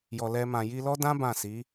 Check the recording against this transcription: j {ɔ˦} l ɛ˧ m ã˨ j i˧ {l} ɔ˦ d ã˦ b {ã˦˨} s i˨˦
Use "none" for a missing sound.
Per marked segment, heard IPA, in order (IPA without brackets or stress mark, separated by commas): ɔ˨, l, ã˦˨